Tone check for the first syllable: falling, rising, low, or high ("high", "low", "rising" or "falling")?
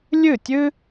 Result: falling